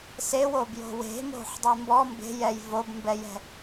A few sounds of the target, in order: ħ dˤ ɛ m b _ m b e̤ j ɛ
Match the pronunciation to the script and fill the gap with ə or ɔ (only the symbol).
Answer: ɔ